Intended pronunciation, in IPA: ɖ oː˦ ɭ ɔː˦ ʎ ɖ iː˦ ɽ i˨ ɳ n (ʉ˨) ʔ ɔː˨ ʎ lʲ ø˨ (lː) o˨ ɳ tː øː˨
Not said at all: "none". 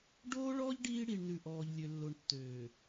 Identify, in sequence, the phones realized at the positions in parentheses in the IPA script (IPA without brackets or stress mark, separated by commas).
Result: ʉ˨, lː